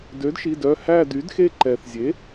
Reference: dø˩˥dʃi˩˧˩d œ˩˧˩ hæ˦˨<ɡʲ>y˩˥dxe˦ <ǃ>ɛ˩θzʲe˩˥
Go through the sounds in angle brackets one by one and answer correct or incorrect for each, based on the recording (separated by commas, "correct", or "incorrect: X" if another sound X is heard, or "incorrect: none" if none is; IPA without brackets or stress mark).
incorrect: d, correct